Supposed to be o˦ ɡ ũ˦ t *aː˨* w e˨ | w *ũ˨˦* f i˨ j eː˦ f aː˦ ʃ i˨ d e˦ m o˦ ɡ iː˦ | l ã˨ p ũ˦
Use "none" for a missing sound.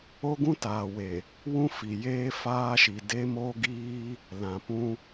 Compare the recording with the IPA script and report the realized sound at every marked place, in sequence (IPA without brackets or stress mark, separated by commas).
aː˨, ũ˦